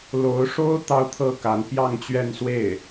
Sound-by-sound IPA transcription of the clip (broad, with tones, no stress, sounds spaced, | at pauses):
l o˧˥ ʊ̯ ʂ o˥ ʊ̯ t̪ ɑ˥˧ ʊ̯ t̪ʰ ɤ˥˩ k a˧˥ n p j ɑ˥˧ ŋ t͡ɕ ɥ ɛ˥˧ n s w e˥˩ ɪ̯